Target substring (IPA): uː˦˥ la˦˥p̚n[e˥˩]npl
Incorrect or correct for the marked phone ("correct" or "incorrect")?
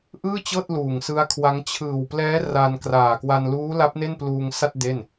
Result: correct